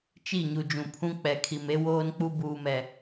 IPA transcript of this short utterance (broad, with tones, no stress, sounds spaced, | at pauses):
t͡ʃ i˦˨ ɲ u˨ d͡ʒ ũ˨ pʰ ũ˦ k͡p ɛ˨ kʰ i˨ m e˦ w oː˦ n k͡p u˦ b uː˦ m ɛ˦